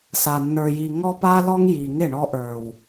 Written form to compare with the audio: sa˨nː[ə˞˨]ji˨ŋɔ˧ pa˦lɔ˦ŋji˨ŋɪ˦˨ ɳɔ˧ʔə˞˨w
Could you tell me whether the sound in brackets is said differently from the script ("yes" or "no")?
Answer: no